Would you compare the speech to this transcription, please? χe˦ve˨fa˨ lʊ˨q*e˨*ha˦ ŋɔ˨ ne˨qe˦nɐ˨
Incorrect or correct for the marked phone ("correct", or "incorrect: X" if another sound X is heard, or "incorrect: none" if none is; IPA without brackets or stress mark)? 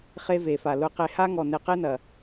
correct